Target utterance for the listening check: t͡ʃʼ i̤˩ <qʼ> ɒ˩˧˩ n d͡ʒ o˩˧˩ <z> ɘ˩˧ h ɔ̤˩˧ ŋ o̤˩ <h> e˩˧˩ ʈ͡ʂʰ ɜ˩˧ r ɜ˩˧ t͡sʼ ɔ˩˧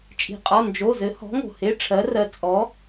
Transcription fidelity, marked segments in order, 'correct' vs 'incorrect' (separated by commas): correct, correct, correct